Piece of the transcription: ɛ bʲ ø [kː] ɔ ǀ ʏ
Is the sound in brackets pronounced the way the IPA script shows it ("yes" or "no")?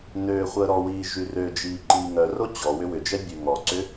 no